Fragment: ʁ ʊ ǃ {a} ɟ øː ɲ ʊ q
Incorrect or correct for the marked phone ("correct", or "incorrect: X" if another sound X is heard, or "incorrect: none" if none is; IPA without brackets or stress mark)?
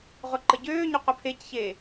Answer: incorrect: ə